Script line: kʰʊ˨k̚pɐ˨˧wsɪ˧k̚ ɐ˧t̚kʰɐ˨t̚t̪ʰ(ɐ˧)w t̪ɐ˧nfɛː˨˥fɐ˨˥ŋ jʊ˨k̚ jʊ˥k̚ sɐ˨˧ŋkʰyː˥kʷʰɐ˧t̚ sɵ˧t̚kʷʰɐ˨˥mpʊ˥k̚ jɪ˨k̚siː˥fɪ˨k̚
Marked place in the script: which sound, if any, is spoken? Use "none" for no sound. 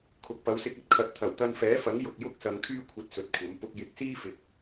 ɐ˨˩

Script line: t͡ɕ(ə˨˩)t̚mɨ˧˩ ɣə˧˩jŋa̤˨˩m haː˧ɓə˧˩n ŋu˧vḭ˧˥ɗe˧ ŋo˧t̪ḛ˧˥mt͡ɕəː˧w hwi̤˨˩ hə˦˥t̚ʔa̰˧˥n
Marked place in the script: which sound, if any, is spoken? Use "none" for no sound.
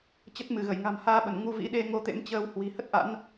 ə˦˥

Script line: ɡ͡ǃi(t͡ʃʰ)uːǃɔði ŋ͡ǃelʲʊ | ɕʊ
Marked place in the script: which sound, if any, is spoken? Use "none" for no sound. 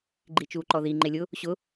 t͡ʃ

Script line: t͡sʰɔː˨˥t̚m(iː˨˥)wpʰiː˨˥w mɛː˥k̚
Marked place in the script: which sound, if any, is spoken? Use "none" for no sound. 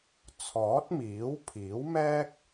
iː˨˥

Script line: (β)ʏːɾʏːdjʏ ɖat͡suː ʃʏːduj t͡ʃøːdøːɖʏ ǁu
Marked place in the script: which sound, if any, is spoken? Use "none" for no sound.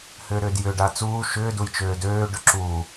h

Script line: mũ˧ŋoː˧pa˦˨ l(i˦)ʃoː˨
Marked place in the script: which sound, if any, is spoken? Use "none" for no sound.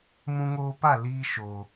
iː˦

